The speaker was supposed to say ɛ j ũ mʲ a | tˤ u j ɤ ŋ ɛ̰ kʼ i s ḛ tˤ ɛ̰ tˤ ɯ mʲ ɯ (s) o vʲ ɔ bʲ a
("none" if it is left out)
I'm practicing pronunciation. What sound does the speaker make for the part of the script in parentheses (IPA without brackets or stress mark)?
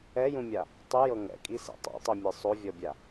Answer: sˤ